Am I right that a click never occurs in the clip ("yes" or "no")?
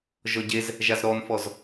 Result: yes